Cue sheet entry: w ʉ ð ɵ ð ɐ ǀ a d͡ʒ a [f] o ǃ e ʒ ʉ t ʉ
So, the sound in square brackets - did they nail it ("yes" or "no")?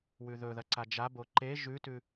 no